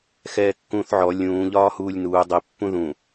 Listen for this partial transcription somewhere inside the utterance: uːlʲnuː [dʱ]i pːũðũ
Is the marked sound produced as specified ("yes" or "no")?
no